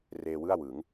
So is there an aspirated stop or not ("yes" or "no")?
no